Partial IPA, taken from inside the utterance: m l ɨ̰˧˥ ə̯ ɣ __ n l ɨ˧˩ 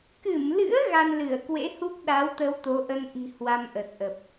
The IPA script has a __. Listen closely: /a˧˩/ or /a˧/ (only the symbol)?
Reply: a˧